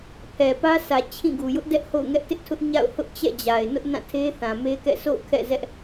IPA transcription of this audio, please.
pʰ ɛ˨ p ä˦ sʰ ä˨ t͡ɕʰ ĩ˦˨ ɡ u˨ j ʊ˦ ʔ d ɛ˦ ʔ h o̰˦˨ ʊ̯ ŋ ɛ˦ ʔ t ɪ˦ ʔ tʰ ʊ˦ ʔ ɲ a̰˦˨ ʊ̯ h ʊ˦ ʔ t͡ɕ ɛ̰˦˨ d͡ʑ a˨ ɪ̯ n ʊ˦ ʔ n ã˦˨ tʰ e˦ θ ã˨ m e˦ k ɛ̰˦˨ sʰ o̰˦˨ ʊ̯ kʰ ɛ̰˦˨ z ɛ˦ ʔ

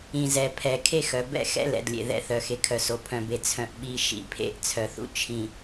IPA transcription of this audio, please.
ĩ˨ z ɛ˨ pʰ ɛ˨ kʰ e˦ x œ˨ b ɛ̰˦ x ɛ̰˦ l ɛ̰˨ d lʲ ḛ˨ ð ɛ̰˨ θ œ˨ x e˨ kʰ œ˨ s o˨ pʰ œ̃˨ b e˨ t͡sʰ œ̃˨ ʔ ɓ i˨ ʃ ḭ˨ pʰ ḛ˦˨ ʔ t͡sʰ œ˨ θ ṵ˦ t͡ʃʰ ĩ˨

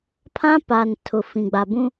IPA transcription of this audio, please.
pʰ ã˦ p a˨ n tʰ ʊ˨ f ĩ˨ ɡ͡b a˨ b ũ˦

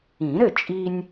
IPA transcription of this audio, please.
ĩ˨˩˦ ɾ ɘ˥˩ t͡ʃʼ i˦ nʲ

